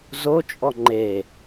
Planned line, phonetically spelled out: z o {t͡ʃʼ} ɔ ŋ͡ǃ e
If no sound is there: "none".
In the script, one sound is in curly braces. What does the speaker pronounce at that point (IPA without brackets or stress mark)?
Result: t͡ʃʼ